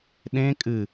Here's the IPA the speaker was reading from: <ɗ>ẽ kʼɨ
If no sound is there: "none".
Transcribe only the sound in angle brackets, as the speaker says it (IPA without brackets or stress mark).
ɗ